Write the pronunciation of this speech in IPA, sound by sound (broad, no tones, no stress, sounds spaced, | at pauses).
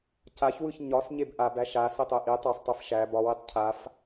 c a ç w ɯ ç ɲ ɒ s ɲ e b ʔ a b æ ʃ a s i tˤ e ʔ i tˤ ɐ sˤ tˤ i f ʃ æ b ɒ w i tˤ cʰ a f